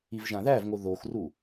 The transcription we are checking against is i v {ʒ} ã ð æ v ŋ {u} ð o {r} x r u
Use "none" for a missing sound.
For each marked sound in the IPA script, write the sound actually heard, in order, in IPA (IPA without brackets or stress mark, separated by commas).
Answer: ʒ, o, none